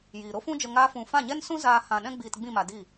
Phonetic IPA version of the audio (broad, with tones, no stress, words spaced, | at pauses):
jiː˨ɾo˦fũ˦d͡ʒə˧ ŋaː˦fũ˧ fã˦˨ɲɛ˦nsũ˦ zaː˦ hã˧ɗɛ̃˦ ɡ͡biː˧tɡ͡bĩ˦˨ ma˧diː˦˨